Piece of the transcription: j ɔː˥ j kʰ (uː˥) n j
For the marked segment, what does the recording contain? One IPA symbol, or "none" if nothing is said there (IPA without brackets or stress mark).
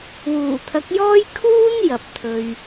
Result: uː˥